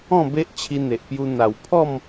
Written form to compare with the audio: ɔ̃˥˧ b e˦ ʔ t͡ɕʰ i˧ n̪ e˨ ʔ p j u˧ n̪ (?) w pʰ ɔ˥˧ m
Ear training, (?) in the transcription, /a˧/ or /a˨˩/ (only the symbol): a˨˩